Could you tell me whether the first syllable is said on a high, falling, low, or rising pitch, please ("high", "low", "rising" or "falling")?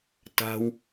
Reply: low